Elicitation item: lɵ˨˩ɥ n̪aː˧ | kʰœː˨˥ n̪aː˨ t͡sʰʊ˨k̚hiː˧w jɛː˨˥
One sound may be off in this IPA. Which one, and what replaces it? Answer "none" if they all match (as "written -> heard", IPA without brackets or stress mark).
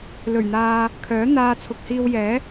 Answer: none